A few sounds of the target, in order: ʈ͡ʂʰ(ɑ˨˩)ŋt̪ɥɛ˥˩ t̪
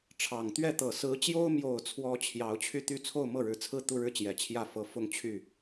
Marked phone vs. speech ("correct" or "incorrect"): correct